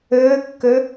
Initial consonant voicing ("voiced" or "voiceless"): voiceless